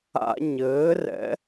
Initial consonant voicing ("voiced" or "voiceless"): voiced